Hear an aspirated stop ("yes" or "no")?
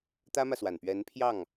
yes